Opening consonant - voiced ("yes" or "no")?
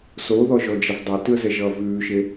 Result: no